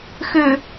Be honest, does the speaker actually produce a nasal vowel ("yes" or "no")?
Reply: no